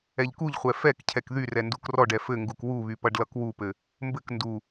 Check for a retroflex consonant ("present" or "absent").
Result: present